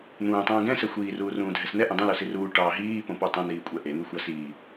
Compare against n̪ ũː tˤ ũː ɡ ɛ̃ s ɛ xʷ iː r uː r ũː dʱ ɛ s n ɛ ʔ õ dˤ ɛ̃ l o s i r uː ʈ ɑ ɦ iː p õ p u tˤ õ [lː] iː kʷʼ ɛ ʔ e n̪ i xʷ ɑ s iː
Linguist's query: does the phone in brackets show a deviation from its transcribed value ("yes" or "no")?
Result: yes